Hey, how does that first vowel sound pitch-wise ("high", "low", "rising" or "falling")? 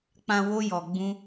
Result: low